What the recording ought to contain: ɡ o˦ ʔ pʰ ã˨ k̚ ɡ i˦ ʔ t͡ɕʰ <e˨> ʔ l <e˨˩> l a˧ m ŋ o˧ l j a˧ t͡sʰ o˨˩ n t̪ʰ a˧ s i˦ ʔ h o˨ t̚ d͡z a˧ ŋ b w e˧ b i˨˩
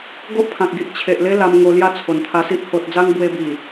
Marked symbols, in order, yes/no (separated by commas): yes, no